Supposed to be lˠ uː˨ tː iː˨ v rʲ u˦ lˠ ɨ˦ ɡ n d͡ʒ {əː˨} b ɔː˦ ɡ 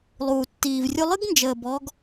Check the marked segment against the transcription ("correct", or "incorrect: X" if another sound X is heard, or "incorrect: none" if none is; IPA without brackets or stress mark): correct